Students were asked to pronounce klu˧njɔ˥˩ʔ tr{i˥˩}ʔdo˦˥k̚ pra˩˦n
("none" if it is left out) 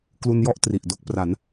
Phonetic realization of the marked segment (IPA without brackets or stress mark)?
i˨˩